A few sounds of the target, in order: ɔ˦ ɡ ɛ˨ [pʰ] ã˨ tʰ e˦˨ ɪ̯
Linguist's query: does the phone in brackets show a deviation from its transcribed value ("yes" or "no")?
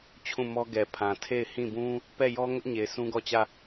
no